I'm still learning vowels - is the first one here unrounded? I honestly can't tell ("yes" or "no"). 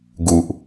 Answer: no